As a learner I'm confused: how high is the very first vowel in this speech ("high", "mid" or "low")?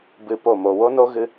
high